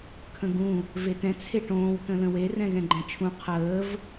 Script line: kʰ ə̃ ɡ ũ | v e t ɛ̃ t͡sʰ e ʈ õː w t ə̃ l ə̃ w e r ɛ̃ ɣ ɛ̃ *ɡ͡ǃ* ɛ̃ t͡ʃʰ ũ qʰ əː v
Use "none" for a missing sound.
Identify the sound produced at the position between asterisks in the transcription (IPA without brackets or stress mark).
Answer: ɡ͡ǃ